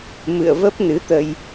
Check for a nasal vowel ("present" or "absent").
absent